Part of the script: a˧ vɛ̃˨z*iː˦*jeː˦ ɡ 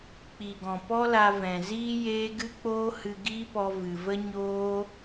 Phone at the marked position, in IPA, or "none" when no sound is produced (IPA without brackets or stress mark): iː˦